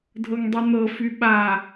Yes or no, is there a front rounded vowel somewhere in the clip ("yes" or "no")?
yes